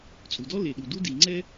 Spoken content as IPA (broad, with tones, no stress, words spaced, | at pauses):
t͡sʼu˩dɔ˥ le˩ɗu˩ du˥ di˩ŋ͡ǀɛ˥